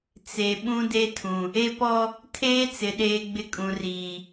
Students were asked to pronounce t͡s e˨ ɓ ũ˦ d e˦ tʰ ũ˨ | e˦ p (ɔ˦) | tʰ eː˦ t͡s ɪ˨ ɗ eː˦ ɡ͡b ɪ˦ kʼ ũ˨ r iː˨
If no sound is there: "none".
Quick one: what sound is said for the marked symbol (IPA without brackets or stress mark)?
ɔ˦